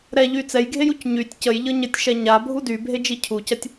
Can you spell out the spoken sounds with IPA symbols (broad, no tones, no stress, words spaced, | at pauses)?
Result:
ɾɛʎy t͡sɛjɡʱejuc ɲytʲ cəjʎɤ ɲətʲʃɛ ɲabʱu dybʱed͡ʒi cʰucɐtʲ